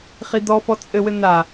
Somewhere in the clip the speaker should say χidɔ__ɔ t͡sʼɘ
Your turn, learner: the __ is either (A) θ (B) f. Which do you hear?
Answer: B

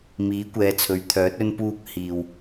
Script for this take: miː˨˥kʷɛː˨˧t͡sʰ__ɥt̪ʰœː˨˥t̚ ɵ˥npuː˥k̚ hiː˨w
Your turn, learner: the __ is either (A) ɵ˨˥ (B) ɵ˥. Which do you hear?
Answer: A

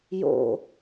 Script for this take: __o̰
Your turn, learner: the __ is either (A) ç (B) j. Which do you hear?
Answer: B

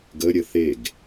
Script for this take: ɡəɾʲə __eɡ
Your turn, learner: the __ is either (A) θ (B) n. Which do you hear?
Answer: A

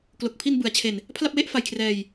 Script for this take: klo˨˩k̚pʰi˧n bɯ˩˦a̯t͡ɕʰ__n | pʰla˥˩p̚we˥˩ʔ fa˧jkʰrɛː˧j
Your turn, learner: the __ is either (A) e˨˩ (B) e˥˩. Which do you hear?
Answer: A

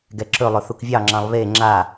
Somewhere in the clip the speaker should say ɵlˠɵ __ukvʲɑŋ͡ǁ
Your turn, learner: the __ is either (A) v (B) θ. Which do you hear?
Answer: B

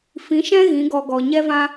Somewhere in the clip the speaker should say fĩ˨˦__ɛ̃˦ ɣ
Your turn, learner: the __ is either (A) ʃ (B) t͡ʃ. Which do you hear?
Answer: A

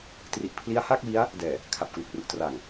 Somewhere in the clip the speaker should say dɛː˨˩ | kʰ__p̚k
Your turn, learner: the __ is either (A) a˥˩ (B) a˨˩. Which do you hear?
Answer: B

